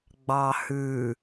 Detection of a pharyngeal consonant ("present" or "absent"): absent